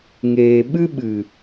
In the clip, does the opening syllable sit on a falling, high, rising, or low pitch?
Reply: low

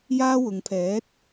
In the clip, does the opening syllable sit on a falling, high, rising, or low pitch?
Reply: high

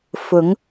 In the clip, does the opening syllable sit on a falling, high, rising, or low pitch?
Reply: rising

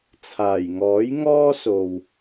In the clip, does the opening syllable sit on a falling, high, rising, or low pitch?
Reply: low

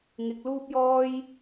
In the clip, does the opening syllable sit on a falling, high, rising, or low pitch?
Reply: low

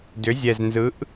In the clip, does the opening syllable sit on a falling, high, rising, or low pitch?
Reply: rising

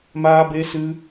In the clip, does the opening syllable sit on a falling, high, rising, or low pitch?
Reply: high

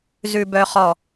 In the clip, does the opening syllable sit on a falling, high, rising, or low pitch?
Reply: low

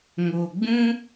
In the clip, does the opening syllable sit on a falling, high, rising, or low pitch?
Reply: low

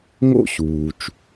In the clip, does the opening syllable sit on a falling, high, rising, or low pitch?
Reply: high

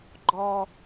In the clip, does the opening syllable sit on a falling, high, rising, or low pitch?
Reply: low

